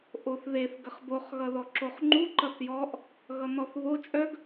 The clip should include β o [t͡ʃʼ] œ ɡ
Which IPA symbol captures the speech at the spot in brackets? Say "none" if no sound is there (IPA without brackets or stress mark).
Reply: t͡ʃʼ